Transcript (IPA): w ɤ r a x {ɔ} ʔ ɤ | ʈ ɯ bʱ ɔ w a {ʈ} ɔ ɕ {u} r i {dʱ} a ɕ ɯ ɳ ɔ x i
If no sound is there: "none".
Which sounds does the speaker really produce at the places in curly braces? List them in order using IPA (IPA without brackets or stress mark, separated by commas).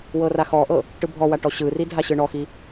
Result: ɔ, ʈ, ɯ, dʱ